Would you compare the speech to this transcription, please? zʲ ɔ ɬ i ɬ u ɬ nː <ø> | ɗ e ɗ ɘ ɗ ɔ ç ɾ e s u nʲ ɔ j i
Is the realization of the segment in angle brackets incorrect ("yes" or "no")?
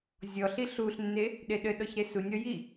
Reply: yes